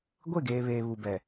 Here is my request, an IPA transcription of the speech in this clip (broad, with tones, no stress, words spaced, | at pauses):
ɡʷe˦˨ɡeː˨βeː˨ βu˨bɛ˨